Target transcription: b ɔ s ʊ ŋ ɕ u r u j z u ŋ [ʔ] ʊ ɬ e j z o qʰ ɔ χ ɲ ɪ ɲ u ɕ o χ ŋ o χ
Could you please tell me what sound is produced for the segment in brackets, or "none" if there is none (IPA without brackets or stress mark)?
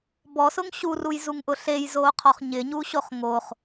ʔ